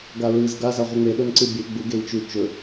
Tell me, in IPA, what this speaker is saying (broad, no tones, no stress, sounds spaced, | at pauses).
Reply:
ɡ a ɹ ɨ z ɡ a z a ʁʷ i ŋ͡m e ɗ ɵ n ǀ ɨ bʲ e ɡ͡b u ɡ e i̯ t͡ʃ ʉ t͡ʃ ɵ